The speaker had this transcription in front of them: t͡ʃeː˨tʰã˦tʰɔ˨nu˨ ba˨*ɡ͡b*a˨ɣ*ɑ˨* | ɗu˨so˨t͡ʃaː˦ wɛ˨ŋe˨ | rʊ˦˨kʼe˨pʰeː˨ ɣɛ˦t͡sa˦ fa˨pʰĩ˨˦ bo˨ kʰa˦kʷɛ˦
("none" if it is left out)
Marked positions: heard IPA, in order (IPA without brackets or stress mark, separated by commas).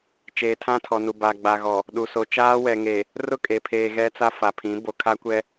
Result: ɡ͡b, ɔ˨